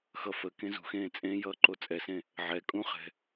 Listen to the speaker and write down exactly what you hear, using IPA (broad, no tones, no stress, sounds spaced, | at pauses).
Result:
x ʌ f ə k ẽ z ṳ x ẽː t͡sʼ ẽ j ʌː ǃ o t͡sʼ ɛ s ẽ | ʕ ɛ kʼ ũ χ ɛ̤